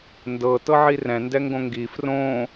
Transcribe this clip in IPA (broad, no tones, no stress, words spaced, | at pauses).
ndɤ tɤʕirɛ̃ ndɛŋɡõŋɡi frõ